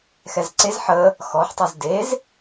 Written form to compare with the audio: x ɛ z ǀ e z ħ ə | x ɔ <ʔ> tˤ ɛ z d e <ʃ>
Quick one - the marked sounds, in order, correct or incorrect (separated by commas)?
incorrect, incorrect